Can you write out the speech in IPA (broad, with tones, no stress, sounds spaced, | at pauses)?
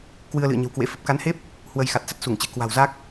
k w ɨ˧ ə̯ l ɨ̰˧˨ ə̯ ɲ ə̤˨˩ w k w ḛ˧˥ f ə˨˩ p̚ k a˨˦ n h e˦˥ p̚ | h w ə˧ j x a˨˩ t̚ s ə˦˥ t̚ s u˧˩ ŋ t͡ɕ ɨ̤˨˩ k w a̤˨˩ w z a˦˥ k̚